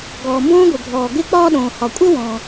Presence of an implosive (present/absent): present